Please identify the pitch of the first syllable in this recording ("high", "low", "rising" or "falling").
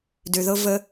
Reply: low